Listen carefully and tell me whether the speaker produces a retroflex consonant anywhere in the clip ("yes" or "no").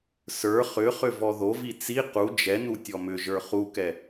no